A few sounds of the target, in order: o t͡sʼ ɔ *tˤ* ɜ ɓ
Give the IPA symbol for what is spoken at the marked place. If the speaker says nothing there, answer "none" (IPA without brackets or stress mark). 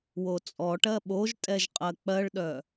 ʈ